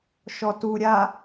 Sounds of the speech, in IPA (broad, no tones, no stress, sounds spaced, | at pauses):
ʃ ɔ t u ɾʲ a